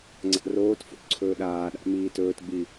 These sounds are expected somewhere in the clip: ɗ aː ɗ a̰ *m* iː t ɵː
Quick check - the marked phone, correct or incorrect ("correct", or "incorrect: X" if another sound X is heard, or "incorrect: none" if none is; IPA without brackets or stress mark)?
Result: correct